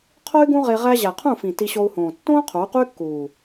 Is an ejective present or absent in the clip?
absent